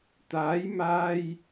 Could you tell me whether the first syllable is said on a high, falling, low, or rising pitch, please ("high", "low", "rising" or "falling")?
rising